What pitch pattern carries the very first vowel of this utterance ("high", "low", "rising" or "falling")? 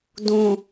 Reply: low